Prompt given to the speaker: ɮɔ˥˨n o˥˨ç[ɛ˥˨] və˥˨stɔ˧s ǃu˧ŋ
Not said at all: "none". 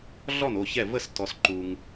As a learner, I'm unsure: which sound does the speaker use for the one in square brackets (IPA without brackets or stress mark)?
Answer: ɛ˥˨